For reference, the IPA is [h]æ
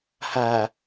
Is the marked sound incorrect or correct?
correct